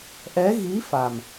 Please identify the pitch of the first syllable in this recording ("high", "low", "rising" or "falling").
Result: rising